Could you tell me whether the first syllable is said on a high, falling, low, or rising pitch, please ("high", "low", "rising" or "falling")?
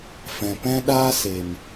low